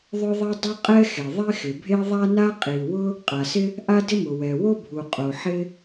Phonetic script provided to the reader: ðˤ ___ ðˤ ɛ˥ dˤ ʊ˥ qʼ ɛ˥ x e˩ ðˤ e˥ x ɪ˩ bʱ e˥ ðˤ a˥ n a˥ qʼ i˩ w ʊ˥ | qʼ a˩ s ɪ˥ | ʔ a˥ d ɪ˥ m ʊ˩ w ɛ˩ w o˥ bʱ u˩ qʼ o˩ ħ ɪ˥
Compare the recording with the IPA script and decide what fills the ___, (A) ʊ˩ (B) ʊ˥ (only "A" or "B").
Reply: B